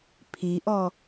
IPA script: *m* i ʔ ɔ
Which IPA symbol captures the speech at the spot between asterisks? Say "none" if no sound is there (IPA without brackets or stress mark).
pʰ